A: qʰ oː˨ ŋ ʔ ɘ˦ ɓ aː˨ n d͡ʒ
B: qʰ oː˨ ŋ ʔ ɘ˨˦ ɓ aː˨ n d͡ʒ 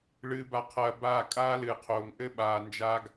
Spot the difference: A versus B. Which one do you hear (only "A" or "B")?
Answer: A